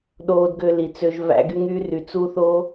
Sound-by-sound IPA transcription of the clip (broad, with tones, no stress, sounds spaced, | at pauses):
ɗ oː˧ d ɡ ø˧ l i˨ t͡s ø˧ ʒ v æ̰˧ ɡ y˧ ŋ yː˧ r y˨ t͡s u˦ θ o˦